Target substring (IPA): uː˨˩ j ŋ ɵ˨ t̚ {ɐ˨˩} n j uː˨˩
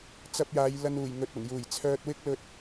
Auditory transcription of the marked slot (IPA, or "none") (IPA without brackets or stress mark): ɐ˨˩